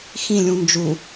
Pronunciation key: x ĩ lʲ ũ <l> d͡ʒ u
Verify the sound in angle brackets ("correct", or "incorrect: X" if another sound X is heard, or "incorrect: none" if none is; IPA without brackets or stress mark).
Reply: incorrect: n